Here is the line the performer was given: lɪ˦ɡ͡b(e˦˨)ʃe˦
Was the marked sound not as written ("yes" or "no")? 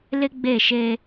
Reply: no